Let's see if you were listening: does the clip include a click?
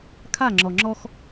yes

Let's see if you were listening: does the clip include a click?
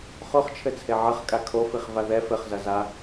no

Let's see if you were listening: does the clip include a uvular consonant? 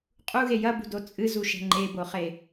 yes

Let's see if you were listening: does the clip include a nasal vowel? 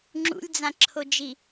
yes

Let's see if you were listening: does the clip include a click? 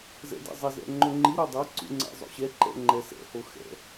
yes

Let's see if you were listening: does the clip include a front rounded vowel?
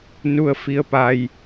no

